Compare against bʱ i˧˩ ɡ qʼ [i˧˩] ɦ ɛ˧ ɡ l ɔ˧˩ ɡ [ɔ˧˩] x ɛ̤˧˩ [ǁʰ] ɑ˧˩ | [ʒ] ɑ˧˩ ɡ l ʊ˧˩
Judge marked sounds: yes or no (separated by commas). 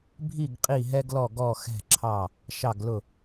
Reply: yes, yes, yes, no